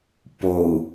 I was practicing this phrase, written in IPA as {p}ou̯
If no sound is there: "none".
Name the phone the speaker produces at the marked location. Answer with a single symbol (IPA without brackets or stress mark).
p